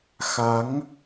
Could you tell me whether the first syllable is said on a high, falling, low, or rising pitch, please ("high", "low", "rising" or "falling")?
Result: rising